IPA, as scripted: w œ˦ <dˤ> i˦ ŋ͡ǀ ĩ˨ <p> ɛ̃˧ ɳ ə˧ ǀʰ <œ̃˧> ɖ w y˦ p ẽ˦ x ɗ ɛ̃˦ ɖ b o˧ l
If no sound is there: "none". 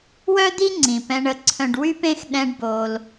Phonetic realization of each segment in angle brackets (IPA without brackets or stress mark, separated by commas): d̪, p, œ̃˧